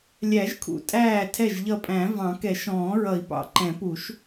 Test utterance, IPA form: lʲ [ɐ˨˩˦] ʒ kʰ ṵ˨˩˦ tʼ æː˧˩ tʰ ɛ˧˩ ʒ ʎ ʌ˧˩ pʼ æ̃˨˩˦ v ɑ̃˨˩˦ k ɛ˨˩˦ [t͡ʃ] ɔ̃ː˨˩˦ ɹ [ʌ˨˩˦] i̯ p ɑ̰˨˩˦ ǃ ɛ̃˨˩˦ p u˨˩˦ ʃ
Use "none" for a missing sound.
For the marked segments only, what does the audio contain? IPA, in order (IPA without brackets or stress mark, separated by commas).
æ˨˩˦, ʃ, ʌ˨˩˦